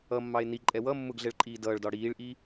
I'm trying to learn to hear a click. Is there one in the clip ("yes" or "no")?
yes